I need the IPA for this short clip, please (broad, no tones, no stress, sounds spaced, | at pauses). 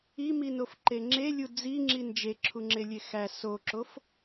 i m i n o f ǃ e ŋ͡ǁ e lʲ u d͡z i ŋ͡ǁ i n d͡ʒ e ǁʰ u ŋ͡ǁ e lʲ e x æ s o ǁ o f